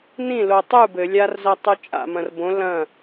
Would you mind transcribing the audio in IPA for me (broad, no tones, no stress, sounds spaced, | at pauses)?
n ĩ l o tˤ u b ɘ lʲ a r z ɐ tˤ u t͡ʃʼ a̰ m ɐ̃ r b õ l ɐ̃